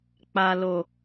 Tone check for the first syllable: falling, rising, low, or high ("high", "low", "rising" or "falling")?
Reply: low